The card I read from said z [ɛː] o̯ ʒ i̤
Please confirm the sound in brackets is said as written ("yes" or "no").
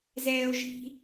yes